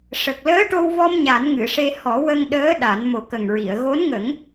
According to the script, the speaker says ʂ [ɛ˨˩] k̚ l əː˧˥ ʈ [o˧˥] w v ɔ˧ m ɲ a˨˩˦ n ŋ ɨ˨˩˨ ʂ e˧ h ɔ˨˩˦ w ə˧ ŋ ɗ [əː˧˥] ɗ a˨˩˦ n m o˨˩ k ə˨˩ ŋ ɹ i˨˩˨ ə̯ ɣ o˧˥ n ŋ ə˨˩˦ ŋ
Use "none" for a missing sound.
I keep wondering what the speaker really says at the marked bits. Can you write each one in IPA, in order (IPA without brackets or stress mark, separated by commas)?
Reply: ə˨˩, o˧, əː˧˥